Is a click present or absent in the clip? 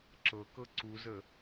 present